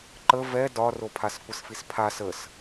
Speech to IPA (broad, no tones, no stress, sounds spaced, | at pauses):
ǃ ə v ɛ d ɒ r o pʰ a s kʷ ə s f i s pʰ a s ə s